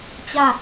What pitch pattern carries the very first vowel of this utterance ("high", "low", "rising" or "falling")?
falling